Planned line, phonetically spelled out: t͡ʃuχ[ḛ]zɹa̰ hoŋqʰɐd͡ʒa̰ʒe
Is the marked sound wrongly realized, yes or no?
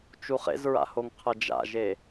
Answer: no